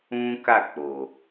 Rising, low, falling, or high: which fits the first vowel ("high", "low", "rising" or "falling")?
high